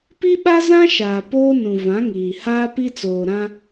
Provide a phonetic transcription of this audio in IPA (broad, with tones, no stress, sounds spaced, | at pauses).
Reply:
p i˦ ɓ a˦ z ã˦ ʃ aː˨ p oː˦ n ũ˨ v ã˨˦ ŋ iː˨ h aː˦ p i˦ t͡s oː˨ ɾ ã˦